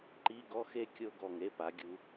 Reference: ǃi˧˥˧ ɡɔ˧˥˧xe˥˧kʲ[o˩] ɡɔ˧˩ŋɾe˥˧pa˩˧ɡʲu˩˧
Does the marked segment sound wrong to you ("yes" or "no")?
yes